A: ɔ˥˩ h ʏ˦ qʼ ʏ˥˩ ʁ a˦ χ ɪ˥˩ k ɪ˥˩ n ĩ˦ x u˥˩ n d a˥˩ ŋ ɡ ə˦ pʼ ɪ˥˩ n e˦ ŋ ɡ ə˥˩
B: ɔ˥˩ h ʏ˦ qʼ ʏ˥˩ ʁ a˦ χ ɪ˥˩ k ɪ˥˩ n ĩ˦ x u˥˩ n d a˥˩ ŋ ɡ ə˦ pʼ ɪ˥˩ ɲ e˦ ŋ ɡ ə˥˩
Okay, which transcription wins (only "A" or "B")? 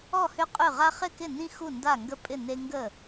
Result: A